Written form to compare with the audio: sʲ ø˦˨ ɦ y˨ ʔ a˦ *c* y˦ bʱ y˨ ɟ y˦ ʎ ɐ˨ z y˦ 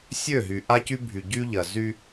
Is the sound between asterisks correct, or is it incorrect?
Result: correct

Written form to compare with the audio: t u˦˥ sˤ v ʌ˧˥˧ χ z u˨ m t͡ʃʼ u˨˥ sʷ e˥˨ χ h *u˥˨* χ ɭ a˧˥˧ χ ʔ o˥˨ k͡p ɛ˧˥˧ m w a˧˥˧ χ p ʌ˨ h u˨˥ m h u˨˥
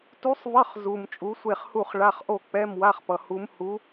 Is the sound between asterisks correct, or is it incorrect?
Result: correct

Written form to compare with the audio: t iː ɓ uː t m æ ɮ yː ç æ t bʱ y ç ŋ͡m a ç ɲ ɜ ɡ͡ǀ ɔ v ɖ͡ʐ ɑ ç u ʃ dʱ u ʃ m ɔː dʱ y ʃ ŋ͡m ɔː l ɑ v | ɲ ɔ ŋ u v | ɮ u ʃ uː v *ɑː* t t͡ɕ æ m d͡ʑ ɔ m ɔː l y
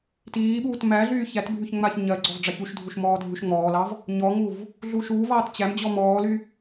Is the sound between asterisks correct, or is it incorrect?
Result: correct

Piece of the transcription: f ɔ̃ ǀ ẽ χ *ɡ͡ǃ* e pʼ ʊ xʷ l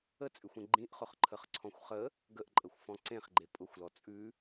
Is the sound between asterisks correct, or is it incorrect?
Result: correct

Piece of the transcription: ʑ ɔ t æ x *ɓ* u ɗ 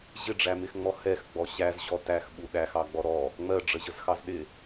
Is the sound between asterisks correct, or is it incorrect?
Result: correct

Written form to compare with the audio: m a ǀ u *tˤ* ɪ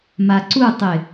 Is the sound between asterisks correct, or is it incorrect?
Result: correct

